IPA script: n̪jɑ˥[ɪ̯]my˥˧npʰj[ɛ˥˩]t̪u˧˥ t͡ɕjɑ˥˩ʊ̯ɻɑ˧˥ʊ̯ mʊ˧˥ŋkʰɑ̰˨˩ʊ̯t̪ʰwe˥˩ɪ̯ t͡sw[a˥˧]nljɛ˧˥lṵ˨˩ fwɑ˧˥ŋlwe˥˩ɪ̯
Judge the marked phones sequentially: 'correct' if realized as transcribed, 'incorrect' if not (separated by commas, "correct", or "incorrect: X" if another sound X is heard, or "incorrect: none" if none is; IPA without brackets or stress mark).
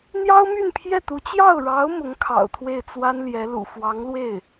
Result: incorrect: ʊ̯, correct, incorrect: a˥